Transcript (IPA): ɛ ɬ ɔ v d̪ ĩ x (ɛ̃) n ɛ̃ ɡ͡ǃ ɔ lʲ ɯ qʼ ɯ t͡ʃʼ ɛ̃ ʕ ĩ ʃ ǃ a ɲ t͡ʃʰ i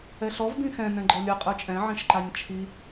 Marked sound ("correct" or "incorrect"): correct